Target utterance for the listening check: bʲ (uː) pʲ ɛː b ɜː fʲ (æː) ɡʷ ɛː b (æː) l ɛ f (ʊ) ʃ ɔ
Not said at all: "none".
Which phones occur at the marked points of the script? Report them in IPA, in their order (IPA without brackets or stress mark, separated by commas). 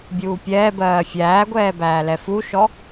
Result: uː, æː, æː, u